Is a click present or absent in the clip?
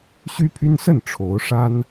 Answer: absent